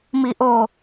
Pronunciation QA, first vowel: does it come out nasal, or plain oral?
oral